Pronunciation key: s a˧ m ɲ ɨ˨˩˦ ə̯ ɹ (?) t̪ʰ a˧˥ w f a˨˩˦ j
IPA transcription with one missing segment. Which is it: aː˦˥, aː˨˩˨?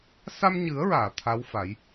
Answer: aː˨˩˨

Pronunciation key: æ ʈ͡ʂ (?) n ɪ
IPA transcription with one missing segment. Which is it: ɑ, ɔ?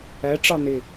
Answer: ɑ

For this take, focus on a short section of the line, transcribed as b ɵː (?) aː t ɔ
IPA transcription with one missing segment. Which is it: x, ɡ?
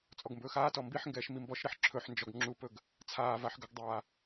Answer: x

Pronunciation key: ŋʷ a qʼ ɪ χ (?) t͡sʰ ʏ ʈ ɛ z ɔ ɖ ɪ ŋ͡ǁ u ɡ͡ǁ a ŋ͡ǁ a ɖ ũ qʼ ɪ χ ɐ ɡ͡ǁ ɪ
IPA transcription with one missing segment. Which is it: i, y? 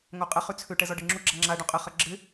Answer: y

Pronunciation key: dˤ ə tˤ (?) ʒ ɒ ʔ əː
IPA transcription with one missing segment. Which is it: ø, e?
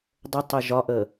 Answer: e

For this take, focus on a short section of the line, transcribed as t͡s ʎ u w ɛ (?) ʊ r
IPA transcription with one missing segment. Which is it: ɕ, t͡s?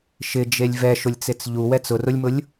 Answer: t͡s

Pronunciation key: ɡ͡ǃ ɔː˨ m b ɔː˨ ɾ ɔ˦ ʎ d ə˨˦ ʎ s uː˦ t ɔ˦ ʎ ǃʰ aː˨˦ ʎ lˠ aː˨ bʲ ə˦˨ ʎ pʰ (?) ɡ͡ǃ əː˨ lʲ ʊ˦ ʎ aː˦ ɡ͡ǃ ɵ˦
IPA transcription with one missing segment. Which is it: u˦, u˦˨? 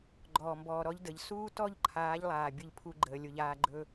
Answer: u˦˨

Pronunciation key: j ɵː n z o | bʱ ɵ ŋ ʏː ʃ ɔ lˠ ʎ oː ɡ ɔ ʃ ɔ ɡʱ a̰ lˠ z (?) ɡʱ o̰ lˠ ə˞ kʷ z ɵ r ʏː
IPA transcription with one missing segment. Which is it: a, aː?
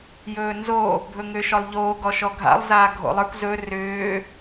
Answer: aː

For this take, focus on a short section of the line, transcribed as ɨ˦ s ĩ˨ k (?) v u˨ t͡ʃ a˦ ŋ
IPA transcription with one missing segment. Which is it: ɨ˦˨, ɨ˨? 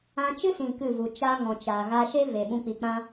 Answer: ɨ˦˨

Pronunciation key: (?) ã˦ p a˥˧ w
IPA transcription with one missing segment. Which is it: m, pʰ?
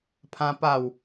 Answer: pʰ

